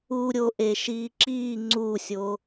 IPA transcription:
u ɾʲ o ʔ e ʃ iː ǁ iː ŋ͡ǀ u sʲ o

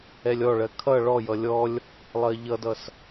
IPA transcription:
ɛ lʲ ɔ ɭ ɜ kʰ ʌ ɭ ɔ j ʌ lʲ ɔ lʲ | lˠ ɜ ʎ ʌ d ʌ s

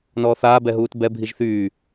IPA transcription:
n ɔː θ aː b ɛ ɦ uː t b ɛ bʱ i ʒ θ yː

